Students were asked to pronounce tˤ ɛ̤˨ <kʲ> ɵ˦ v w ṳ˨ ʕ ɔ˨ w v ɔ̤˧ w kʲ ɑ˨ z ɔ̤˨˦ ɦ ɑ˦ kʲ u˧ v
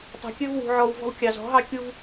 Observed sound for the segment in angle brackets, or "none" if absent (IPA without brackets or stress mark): kʲ